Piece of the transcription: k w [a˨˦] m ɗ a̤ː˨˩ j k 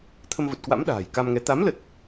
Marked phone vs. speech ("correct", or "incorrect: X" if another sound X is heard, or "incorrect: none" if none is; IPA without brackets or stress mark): incorrect: a̰˧˥